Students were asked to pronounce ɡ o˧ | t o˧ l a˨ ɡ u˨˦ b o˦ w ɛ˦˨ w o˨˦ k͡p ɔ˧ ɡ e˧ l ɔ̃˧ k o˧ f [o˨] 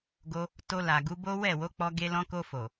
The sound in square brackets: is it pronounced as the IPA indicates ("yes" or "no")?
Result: yes